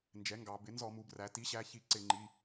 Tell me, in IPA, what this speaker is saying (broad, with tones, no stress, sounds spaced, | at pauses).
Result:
n d͡ʒ ɛ˩˥ ŋ ɡ ɑ˩˧ b ɪ˩˥ n z ɔ˧˩˧ m u˩˧ b r æ˩˧ t i˩˥ ɕ æ˩˧˩ ç i˧˩˧ ǀ ɪ˧˩˧ ŋ͡ǃ i˩˧˩